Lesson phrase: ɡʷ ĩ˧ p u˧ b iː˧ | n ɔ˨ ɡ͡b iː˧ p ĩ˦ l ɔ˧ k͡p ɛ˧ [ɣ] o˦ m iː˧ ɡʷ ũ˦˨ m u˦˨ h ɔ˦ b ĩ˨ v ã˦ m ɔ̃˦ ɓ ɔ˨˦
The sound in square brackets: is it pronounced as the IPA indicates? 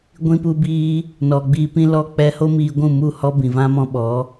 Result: no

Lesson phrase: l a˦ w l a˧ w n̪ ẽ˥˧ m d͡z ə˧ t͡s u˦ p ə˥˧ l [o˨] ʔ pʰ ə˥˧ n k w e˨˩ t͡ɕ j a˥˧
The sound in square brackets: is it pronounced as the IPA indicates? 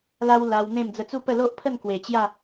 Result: no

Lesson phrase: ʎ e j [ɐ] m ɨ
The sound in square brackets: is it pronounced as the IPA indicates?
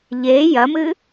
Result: yes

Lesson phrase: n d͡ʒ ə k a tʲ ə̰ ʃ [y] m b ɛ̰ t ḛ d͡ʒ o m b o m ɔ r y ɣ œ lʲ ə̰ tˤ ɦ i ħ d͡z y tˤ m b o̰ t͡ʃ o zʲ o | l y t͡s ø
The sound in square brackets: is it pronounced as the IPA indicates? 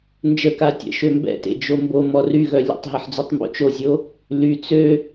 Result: no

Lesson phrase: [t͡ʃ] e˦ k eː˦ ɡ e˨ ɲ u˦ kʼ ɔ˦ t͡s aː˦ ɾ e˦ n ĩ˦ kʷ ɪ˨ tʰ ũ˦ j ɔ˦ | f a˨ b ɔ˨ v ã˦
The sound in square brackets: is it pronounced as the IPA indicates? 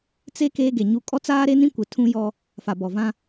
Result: no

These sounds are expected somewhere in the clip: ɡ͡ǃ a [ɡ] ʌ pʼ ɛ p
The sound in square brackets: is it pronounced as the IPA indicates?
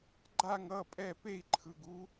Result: no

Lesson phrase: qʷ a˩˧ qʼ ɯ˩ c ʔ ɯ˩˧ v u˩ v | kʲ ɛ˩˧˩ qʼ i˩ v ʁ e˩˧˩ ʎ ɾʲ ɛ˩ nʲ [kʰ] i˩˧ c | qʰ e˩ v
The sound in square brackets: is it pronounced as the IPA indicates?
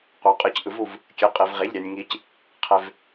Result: no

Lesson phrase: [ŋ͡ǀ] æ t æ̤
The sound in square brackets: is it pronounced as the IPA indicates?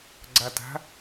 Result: no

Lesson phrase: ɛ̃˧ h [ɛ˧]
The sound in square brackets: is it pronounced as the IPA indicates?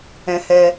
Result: yes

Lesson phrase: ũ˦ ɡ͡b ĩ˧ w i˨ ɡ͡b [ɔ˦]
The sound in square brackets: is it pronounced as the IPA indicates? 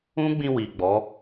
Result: no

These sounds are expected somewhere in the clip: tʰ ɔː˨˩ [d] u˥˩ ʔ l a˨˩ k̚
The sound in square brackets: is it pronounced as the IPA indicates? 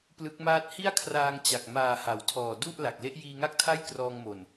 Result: yes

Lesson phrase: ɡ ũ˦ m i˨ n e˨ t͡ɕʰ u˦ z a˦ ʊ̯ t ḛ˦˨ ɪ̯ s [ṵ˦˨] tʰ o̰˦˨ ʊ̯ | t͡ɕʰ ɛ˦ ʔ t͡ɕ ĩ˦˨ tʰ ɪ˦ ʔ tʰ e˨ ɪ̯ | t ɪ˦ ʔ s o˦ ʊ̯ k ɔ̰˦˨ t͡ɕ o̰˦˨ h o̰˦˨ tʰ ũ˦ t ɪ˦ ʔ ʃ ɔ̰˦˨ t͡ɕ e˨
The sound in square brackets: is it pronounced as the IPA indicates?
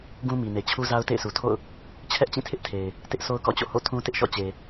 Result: no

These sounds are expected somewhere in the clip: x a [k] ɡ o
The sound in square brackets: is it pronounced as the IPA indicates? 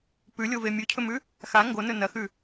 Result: no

